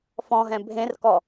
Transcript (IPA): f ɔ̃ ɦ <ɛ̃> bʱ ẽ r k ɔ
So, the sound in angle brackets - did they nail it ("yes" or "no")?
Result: yes